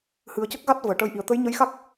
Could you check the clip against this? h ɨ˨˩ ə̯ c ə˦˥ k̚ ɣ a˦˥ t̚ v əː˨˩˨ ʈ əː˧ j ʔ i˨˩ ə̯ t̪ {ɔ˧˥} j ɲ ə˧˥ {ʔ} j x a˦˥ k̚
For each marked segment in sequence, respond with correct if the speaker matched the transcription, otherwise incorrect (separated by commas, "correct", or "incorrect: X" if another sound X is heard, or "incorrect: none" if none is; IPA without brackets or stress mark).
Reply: incorrect: ə˧˥, incorrect: none